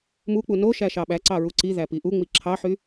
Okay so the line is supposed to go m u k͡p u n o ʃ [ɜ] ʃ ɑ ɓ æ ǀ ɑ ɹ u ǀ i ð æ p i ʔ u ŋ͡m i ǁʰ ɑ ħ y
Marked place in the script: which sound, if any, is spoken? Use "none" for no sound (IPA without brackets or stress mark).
æ